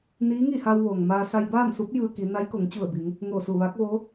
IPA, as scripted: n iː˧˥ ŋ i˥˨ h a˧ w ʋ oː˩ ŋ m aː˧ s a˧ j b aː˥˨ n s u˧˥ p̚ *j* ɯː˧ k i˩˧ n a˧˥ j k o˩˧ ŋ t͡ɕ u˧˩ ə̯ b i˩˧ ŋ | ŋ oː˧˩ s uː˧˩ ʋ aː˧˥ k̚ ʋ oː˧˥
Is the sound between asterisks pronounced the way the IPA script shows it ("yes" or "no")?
yes